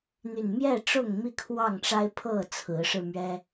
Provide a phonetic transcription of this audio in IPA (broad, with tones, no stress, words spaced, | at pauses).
n̪y˨˩nmjɛ˥˨ ʈ͡ʂʊ˥˨ŋmi˥˨kʰwɑ˥˨ŋʈ͡ʂa˦ɪ̯ pʰɤ˥˨t͡sʰɹ̩˨˦ʂɻ̩˧mɥɛ˦